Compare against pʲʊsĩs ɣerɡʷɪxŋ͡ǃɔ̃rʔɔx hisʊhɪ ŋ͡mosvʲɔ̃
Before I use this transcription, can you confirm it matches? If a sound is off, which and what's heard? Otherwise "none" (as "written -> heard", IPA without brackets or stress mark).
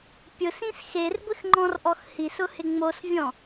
ɣ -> x